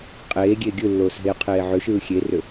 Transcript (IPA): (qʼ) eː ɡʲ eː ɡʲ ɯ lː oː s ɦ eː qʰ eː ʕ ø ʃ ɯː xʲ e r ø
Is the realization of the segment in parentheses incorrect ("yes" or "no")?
no